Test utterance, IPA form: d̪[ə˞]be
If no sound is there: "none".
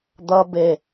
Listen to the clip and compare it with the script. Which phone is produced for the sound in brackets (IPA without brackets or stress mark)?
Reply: ʌ